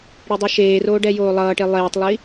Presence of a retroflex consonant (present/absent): present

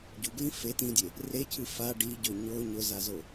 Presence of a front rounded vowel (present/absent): absent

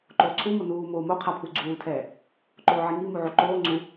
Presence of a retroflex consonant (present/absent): absent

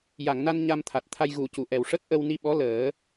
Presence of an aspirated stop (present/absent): present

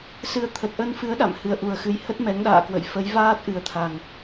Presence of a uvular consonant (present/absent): absent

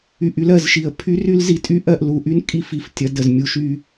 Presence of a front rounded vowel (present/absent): present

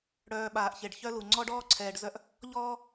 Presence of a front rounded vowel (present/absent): present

